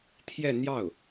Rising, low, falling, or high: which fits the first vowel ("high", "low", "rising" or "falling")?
falling